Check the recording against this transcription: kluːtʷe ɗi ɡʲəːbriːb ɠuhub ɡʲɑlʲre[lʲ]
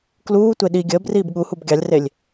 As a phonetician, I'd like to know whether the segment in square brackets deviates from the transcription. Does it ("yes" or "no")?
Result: no